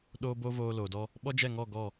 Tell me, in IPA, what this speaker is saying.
ɗ oː˦ b o˦ v oː˧ l oː˨ d ɔ˧ | ɓ ɔ˦ d͡ʒ ɛ˦˨ ŋ ɔ˦˨ ɡ ɔ˦˨

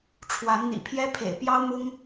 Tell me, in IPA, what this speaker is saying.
ʈ͡ʂʰ w a˨˦ n n̪ ḭ˨˩ pʰ j ɛ˦ pʰ ḛ˨˩ ɪ̯ p j ɑ˦ ʊ̯ m ʊ˦ ŋ

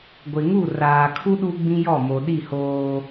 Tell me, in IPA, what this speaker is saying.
ɡʷ ɪ˨ ŋ u˦˨ r aː˨ kʰ u˦ ɗ u˦ ɡ͡b ĩ˦ j ɔ˦˨ m o˨ ɗ i˦˨ h oː˦

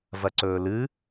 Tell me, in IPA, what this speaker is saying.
v ɐ ǀ ɵː l ɨ

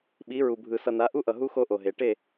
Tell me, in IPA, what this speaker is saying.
ɓ i˨˦ ɹ u˨ bʱ ɯ˨ s ʌ˨ n a˨˦ ʔ u˦ ʔ ʌ˨ ɦ u˦ x o˦ ʔ o˨ ɦ e˨ ʈ e˦˨

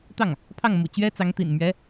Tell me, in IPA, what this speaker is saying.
t̪ ɑ˥˩ ŋ | pʰ ɑ˥˩ ŋ m ṵ˨˩ t͡ɕ ɥ ɛ˥ t͡s ɑ˧˥ ŋ t̪ ḭ˨˩ n m ɥ ɛ˧˥

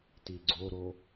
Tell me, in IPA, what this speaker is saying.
t i ɡ͡ǀ o ɾ o

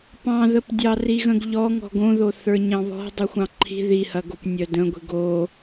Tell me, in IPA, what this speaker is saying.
p ɑ̃ ð ə p dʲ ɑ r i ɣ ə̃ ɡ ʎ ɔ ŋ ɔ̤ ɡ õ ð o θ ə˞ ɲ ɑ̃ β ɔ̤ dˤ i xʷ ɑ̃ ǃʰ i̤ ð i h ɐ ɡ o p nʲ œ d ə̃ ɡʷ i̤ ɡ o

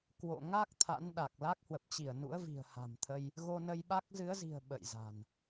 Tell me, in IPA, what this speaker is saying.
k w o̰˧˨ ŋ a˦˥ k̚ t̪ʰ a̰˧˥ n ɗ a˨˩ k̚ l a˦˥ k̚ h w ə˨˩ p̚ t͡ɕ i˧˩ ə̯ n ṵ˧˥ ə̯ v i̤˨˩ ə̯ h a̤˨˩ m t̪ʰ ə˧ j | ɣ o˧ n ə˧ j ɓ a˦˥ k̚ z ɨ˨˦ ə̯ z i̤˨˩ ə̯ ɓ ə̰˧˨ j z a̤˨˩ n

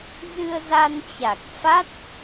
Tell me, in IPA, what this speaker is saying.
z ɨ˧ ə̯ z a˧ n t͡ɕ a˨˩ k̚ f a˦˥ t̚

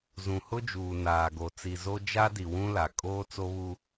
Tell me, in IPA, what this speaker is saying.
z ũ˨ h ʊ˦ d͡ʒ uː˨ n aː˨ ɡ o˨ t͡s i˨ z o˦ d͡ʒ a˦ d i˨ w ũ˦ l a˨ kʼ oː˦ t͡s o˦ β u˦

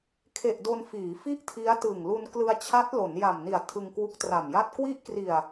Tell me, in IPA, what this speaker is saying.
kʰ e˨˩ ʔ d o˧ n f iː˩˦ f i˥˩ ʔ tʰ i˦˥ a̯ t ɯ˨˩ ŋ l u˧ n k l ɯ˧ a̯ t͡ɕʰ a˦˥ t̚ l o˩˦ n j a˨˩ m n i˨˩ a̯ tʰ ɯ˧ ŋ k w u˦˥ k̚ t r a˨˩ m j a˥˩ t̚ k w i˦˥ ʔ k r i˨˩ a̯

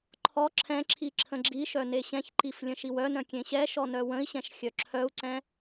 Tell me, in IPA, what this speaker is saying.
ǃʰ ɔ ǁʰ ɛ̃ ǁʰ i ǁʰ ə̃ ɡ͡ǁ i ʃ œ n e ɕ ɛ̃ ç ǃ i f lʲ ə̃ ʃ i w œ n œ̃ kʲ ẽ ɕ ɛ ʃ ɔ n œ w ə̃ i̯ ɕ ɛ̃ ʃ xʲ œ ǁʰ œ u̯ ǀ ɛ̃

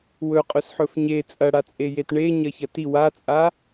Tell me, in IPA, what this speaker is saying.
w ɵ qʼ ɵ s ħ ɵ f ɲ e t͡sʼ ɐ ɽ a t͡sʼ e j e t ɳ e ɲ ɐ ç ɐ t i w a t͡sʼ a

